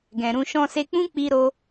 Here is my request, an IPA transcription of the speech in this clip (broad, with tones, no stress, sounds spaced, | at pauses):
ɡ ɛ̃˨ ɾ ũ˧ ʃ ɔ̃˧ s e˧ k͡p ũ˦ k͡p i˦ ɾ o˦